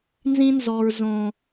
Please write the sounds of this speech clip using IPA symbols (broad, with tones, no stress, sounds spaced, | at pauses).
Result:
n z ĩ˦ n z ɔ˨ ɹ z õ˨